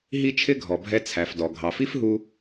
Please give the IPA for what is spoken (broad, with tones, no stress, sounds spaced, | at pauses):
ɦ i˧ t͡ʃʰ ɪ˧ ɡʱ ɔ˩ bʱ ɛ˧ t͡sʰ æ˩ f d ɔ˩ ɡʱ ɑ˩ f i˥ f ɦ u˧